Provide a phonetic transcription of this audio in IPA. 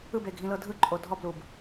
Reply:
ɯ b e ɡʱ ĩ l ɤ dʱ ɯ ǃʼ o dʱ ɔ b l u b

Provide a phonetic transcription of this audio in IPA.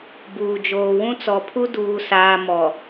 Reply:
b uː˨ d͡ʒ oː˨ w ũ˦ t͡s ɔ˨ pʰ u˦ d uː˨ s aː˨ m ɔ˨

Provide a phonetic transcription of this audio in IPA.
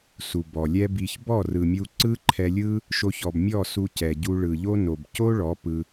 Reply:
s u˨ b ɔ˨ lʲ ɛ˦ b i˧ ç b ɔ˦˨ r ɯ˨ mʲ u˧ ǀ ɯ˦ ǃʰ ɛ˧ lʲ ɯ˦ | ʃ o˧ ç ɔ˨ b mʲ ɔ˦˨ s u˧ c ɛ˨ ɟ u˧ ɭ ɯ˨ ʎ o˦ n o˨ b c o˦ ɭ ɔ˨˦ p ɯ˧

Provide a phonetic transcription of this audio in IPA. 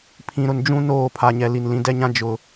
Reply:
pʰ ĩ˨ ɾ ʊ˨ n d͡ʒ ũ˦ n oː˦˨ pʰ a˨ ɲ ɛ˨ l i˨ n l ĩ˨˦ d ɛ˦ ɲ ã˦ d͡ʒ ʊ˨

